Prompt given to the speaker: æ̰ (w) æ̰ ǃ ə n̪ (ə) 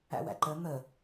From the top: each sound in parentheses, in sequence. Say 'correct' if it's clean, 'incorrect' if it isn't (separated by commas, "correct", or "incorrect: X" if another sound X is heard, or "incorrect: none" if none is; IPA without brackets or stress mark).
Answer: correct, correct